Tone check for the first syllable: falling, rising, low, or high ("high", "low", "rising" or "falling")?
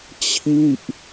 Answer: falling